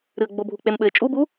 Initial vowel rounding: unrounded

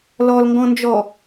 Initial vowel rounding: rounded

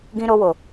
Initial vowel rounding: unrounded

